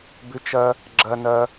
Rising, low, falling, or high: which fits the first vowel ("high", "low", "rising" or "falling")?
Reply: low